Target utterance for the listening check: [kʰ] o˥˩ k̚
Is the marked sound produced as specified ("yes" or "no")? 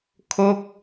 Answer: yes